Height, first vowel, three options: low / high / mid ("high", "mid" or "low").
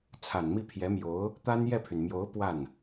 low